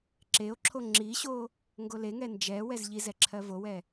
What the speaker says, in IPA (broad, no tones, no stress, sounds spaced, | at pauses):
ǁ e o̯ ǁʰ o ŋ͡ǁ i ɕ o | ŋ ɡ o l e ŋ ɛ n d͡ʒ ɛ w ɛ z ʎ i z ɛ ǁʰ ɜ v o w ɛ